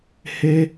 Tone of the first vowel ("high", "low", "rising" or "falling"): high